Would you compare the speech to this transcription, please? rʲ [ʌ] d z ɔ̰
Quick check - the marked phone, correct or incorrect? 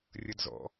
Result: correct